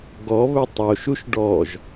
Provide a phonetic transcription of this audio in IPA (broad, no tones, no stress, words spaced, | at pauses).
ɡɔ βɵtˤoʃuʃ ɖɔʒ